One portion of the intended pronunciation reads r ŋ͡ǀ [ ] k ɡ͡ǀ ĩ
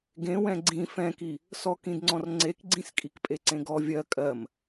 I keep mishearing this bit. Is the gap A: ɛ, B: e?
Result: B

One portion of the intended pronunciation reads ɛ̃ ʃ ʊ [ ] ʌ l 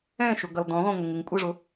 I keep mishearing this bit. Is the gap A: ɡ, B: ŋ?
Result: A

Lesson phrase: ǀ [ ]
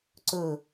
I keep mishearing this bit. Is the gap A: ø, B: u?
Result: A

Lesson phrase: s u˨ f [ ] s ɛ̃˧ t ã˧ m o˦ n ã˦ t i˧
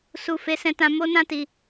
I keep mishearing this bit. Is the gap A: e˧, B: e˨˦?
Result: B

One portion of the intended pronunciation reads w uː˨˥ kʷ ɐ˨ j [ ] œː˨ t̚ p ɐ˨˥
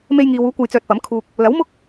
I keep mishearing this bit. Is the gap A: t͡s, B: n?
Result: A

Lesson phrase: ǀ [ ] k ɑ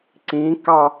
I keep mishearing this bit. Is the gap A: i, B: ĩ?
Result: B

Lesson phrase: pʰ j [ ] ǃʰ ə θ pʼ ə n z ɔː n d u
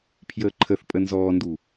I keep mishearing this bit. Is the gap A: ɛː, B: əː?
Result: B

